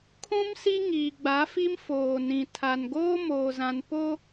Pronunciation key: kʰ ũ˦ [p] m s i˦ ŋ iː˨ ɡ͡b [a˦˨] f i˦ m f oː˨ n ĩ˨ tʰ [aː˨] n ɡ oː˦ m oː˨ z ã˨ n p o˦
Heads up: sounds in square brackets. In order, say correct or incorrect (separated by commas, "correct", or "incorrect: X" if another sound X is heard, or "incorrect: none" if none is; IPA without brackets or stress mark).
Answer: incorrect: none, incorrect: a˨˦, incorrect: a˨